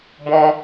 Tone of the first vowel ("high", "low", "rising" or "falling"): high